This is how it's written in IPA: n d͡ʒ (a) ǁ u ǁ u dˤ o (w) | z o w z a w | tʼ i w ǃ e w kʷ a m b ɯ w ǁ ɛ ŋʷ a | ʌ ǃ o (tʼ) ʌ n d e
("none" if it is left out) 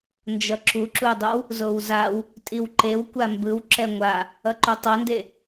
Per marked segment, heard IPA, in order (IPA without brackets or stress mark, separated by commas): ʌ, w, tˤ